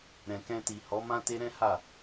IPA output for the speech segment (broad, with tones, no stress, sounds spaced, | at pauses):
ɾ ɛ̃˨ k ɛ̃˧ t i˨ h ɔ˨˦ m ã˦ t e˦ ɾ ɛ̃˦ h a˦˨